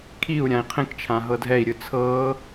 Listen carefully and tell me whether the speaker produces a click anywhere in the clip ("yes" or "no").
no